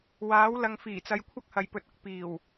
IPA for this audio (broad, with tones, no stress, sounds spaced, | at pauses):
w aː˨˥ w l ɐ˨ ŋ f iː˨˩ t͡s ɐ˨ j kʷʰ ɐ˥ k̚ h ɐ˨ j p ɵ˨ t̚ ʊ˨ k̚ p iː˨˩ w